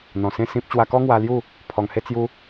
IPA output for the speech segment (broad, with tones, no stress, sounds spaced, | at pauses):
n̪ ɔ̃˨˩ s ẽ˥˧ s ĩ˦ p̚ t͡ɕ w a˧ k ɔ˦ ŋ w a˧ l j u˥˧ | pʰ ɔ˨˩ ŋ h e˥˧ t͡s j u˦